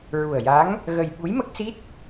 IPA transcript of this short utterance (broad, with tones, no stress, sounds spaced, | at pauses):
ɹ u˨˩ ə̯ j a˧˥ ŋ | ɣ ə˧ j ɓ u˧˥ j m ə˦˥ k̚ s i˦˥ t̚